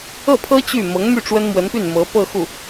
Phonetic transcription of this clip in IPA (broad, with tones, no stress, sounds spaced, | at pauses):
ɤ˥˩ pʰ ɤ˥ t͡ɕ y˥˩ m ɤ˧˥ ŋ m y˥˩ ʈ͡ʂ w ə˥ n m w ə˧˥ n p y˥˩ n m ɤ˧˥ p ɤ˥˧ x u˥˩